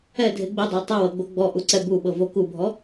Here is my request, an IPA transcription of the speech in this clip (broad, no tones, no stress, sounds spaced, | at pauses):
ɛ dʱ e ɡ͡b i dˤ a tˤ ɯ w ɤ ɡ͡b o ɡ͡b ɔ ʔ u ǀ ɛ b u ɓ ɤ v o k u bʱ ɔ